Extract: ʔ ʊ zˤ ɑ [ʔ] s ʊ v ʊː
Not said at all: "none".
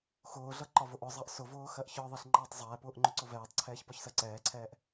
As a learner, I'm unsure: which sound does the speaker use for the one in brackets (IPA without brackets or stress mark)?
ʔ